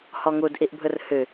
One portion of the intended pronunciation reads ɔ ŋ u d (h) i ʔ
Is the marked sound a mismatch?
yes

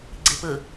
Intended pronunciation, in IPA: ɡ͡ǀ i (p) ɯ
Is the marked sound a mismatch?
no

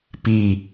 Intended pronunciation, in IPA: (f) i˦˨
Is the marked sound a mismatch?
yes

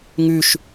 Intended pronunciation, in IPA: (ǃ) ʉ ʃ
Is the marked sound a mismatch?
yes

